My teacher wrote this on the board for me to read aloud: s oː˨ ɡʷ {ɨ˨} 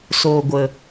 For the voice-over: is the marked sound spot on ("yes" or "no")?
no